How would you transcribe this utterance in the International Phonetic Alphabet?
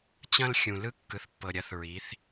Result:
t͡ɕ ɐ̃˧ l xʲ ũ˩ l ɯ˧˥ kː ɯ˩ θ pː ɤ˩ ɾʲ ɐ˩˧ θ ɹ i˩˧ θ

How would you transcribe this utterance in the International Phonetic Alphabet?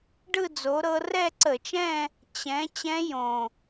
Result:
ɖ ɯ˥˧ d͡z o˨˦ ɾ ɤ˦˥ r ɛ˥˧ ǀ ə˧˩˧ t͡ʃ ɛ̃˥˧ | t͡ɕ ɛ̃˨˦ t͡ɕ ɛ̃˦˥ j õ˨˩

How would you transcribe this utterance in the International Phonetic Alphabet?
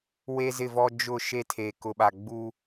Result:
w e˦ z ɪ˦˨ v ɔ˦ d͡ʒ ʊ˦˨ ʃ e˦ tʰ eː˨ k ʊ˨ ɓ a˨ ɡ͡b uː˦

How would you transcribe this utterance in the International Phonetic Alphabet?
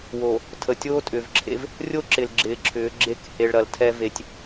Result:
w o˨ | tʰ ə˨ tʲ oː˦ tʼ ʏː˨ v ǁʰ ḛ˦ v | rʲ o˦ ǁ ɪ˨ l ɡ͡ǁ ɪː˨˦ ǁʰ ʏː˨˦ ɡ͡ǁ e˦ k h e˨ ɭ ɾ ɐ˨ l tʰ ɛ˦ v e˨ tʲ

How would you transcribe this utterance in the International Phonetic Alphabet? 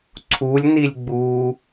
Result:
ǀʰ u lʲ n i lʲ ɡ͡b u

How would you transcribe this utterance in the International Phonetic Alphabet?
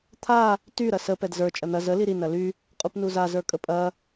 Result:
t̪ʰ a | t y ɾ ɐ s ə p ɛ d z ə˞ t͡ʃʼ ɐ n̪ ɐ z ə l i ɾ i n ɐ l y | qʼ u p n u z a z ə˞ kʼ ə pʼ ɐ

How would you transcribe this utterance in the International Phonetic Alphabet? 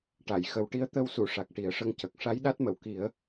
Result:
ʈ a˨˩˨ j x ə˨˩ w ʈ i˧ ə̯ t̪ ə˧ w s u˨˩˨ ʂ a˨˩ k̚ ʈ i˨˩˦ ə̯ ʂ ə˧˥ ŋ c ə˨˩ k̚ ʂ a˧˥ j ɗ a˦˥ t̚ m ə˨˩˨ w k i˨˩˦ ə̯

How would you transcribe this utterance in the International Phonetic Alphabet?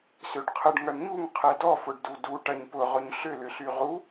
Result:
s ø ɖ qʰ ə ɖ ŋ ɐ ɳ ɲ u ŋ qʰ ɛ d ɔ f ʊ ɖ d u d u ʈ ɐ ɲ p ʊ ʁ ʊ ɲ ɬ ʏ l ʏ ɬ y ʁ u

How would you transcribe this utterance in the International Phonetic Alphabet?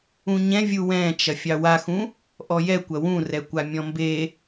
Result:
ũ ɲ ɛ̃ vʲ u w ɛ̃ t͡ʃ ɐ fʲ ɑ w a x ũ | ʔ ɔ j ɛ kʷ ɐ w ũ r ɛ kʷ a mʲ ɔ̃ m b e

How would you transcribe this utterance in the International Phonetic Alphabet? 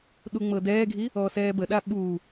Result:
ɗ u ŋ͡m ɤ d ɛː ɡʱ i | ɔː s ɛː b ə ɗ a ɓ uː

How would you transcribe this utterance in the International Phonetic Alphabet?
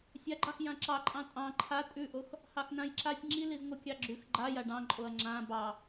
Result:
sʲ a ɡ͡ǃ ɑ x j ã ǁ ɑ ǃʼ ɑ̃ tʼ ɑ̃ ǃʰ a tʼ ʉ ʔ o x | h ɑ x n ã j ǁ a sʲ ŋ͡ǁ i l i z ŋ o kʲ ɑ ɡ͡ǁ ʉ x ɡ͡ǃ a j a ɖ ɑ̃ ǃʼ o ɐ̯ ŋ͡ǁ ã b ɑ

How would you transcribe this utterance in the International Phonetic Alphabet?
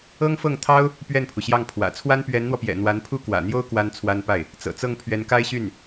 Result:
ɤ˥ ŋ f ɤ˥˩ ŋ t̪ʰ ɑ˥ ʊ̯ | p ɥ ɛ˥˩ n pʰ u˩ ɕ j ɑ˥˩ ŋ pʰ w ä̰˨˩ t͡sʰ w a˥ n p ɥ ɛ˧˥ n n̪ w ɔ˧ p j ɛ̰˨˩ n̪ w a˧˥ n pʰ u˥ k w ä̰˨˩ n̪ j o˥ ʊ̯ k w a˥ n t͡sʰ w a˥ n p a˥˩ ɪ̯ | t͡s ɤ̰˨˩ t͡s ɤ˥˩ ŋ pʰ ɥ ɛ˧˥ n k a˥ ɪ̯ ɕ y˥˩ n

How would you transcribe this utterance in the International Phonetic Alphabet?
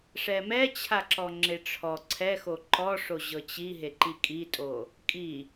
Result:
ʂ ɛ m ɛ t͡ɕʰ a ǁ ɔ ŋ͡ǁ e ʈ͡ʂʰ ɔ ǀʰ ɛ x o ǃ ɔ ʂ o ʑ ɤ t͡ɕ i ɦ e ǃ i kʼ i tʼ o | kʼ i

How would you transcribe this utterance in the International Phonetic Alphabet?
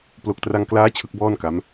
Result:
p l o˨˩ k̚ t r a˧ ŋ k l aː˦˥ t͡ɕʰ ɯ˦˥ k̚ b ɔː˥˩ n k a˦˥ m

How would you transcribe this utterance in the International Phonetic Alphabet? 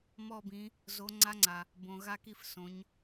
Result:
m ɔ˦˨ b ĩ˩˧ | z o˩˧ ŋ͡ǀ a˧˥ ŋ͡ǀ a˩ | b õ˩ ɣ a˦˨ k i˦˨ f s õ˩˧ ɲ

